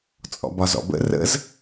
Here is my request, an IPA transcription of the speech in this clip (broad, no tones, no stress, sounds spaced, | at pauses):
t͡sʼ ɔ̰ b ɒ z ɔ̰ b ə̰ r ə̰ z